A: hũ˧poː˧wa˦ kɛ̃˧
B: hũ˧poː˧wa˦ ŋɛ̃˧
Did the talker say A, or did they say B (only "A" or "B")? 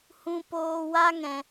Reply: B